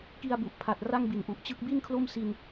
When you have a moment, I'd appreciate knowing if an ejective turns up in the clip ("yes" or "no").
no